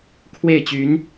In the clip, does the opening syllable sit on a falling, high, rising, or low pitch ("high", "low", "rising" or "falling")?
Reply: falling